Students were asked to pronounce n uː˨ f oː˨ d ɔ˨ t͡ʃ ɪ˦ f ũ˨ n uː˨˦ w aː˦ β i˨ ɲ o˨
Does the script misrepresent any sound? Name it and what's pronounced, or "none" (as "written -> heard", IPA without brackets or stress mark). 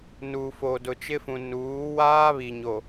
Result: ɔ˨ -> ʊ˨